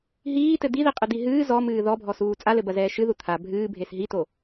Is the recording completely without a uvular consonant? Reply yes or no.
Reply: no